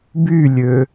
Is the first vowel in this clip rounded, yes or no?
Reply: yes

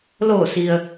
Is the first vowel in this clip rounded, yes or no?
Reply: yes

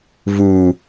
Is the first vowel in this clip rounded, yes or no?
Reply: yes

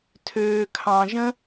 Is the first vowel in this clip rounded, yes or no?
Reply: yes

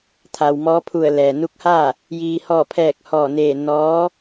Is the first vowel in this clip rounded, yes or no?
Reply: no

